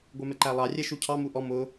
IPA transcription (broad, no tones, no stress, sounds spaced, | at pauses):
ɡʷ ə˞ m ɛ ǃ æ lˠ ɑ rʲ ɛ ʃ u cʰ ɑ m u ʔ ɔ m ʊ